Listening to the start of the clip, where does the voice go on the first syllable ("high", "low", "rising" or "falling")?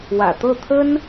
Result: low